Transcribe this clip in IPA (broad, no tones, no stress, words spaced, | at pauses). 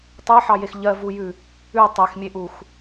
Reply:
tˤɜħɑjex ʎɜvujʉ | ʉ tˤexmʲeʔux